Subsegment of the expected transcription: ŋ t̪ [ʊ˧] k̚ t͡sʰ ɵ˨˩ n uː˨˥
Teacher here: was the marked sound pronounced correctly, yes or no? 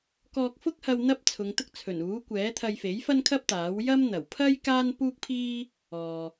no